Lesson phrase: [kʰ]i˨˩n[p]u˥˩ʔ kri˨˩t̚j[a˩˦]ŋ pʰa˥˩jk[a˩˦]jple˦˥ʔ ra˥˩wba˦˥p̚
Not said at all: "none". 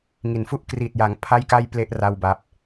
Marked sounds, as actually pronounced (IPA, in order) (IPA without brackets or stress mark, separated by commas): ŋ, f, a˩˦, a˥˩